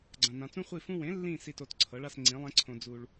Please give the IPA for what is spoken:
ɡ͡ǀ ã˨ n ã˨ t͡s ũ˦ χʷ i˦˨ f ũ˦ w ẽ˩˥ lː ĩ˦˨ s i˦˨ t o˦˨ t ǀʰ ɤ˩˥ ɭ a˦˨ s ŋ͡ǀ ĩ˩˥ lˠ ẽ˦ ǀʰ õ˨ d͡z u˨ ɭ

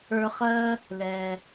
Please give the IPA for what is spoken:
ə˞˧ χ ɜ˥ | l ɛ˩

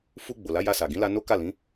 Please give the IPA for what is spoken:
f u˧ ɡ͡b o˨ l a˨˦ j a˧ s a˨ ɡ ĩ˨˦ l a˧ n o˦ k a˦˨ l ĩ˨˦

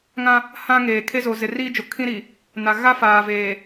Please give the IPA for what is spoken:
ŋ ã˦ | h ã˦ ŋ eː˨ kʰ e˦ z o˨ z ɪ˨ r iː˦ d͡ʒ o˨ kʰ ĩ˦ ɾ i˨ | n a˨ ɣ a˦ f aː˨ v eː˨

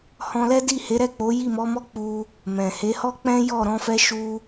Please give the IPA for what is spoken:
h ɔ̃˧ l ɛ˦ d i˦˨ h e˨˦ ɾ ɛ˦˨ k͡p o˨˦ j i˦˨ m ɔ˨˦ m ɔ˦ k͡p u˧ | m ɛ̃˨ h e˨˦ h ɔ˦ k͡p ɛ̃˦ j ɔ˦˨ ɾ ɔ̃˧ f ɛ˧ ʃ u˦

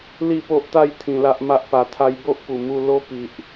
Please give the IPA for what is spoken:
l i˥˧ p o˦ ʔ t̪ a˥˧ j t̪ʰ ĩ˧ l a˦ ʔ m a˦ ʔ p a˧ t̪ʰ a˦ j b o˦ ʔ p u˨˩ m u˧ l o˦ p i˨ ʔ

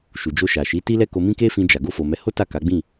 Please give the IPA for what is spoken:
ʃ u˨ d͡ʒ o˧ ʃ a˨ ʃ i˨˦ t i˦ l ɛ˦ k o˧ m ĩ˦ k e˦ f ĩ˧ d͡ʒ a˨ ɡ o˧ f o˨ m ɛ˨˦ h o˦ t a˦˨ k a˨˦ ɡ͡b ĩ˦˨

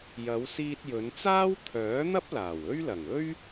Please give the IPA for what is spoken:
j ɐ˨˧ w s iː˧ t̚ j ɵ˨˧ n t͡s aː˥ w t̪ʰ œː˨˥ n̪ ɐ˥ p̚ l aː˨˩ w ɵ˥ ɥ l ɐ˨˩ ŋ ɵ˥ ɥ

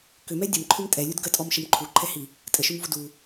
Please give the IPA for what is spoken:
k ʏ m ɛ dʲ ə m ǃʰ ʏ m tʼ ɛ lʲ u d ɡ ə tʼ ɔ m ʃ ə m ǃʰ u ǃʰ ɛ h i | tʼ ə ʃ ʏ m v u d u

